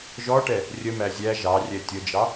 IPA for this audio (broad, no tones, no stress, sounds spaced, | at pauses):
ʒ ɔ ʈ ɛ | rʲ ə m æ zʲ æ ʒ ɑ rʲ ɛ tʲ ə d͡ʒ ɑ